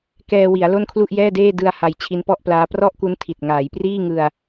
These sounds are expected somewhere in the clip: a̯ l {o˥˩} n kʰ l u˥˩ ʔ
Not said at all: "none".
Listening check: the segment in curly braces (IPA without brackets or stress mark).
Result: o˥˩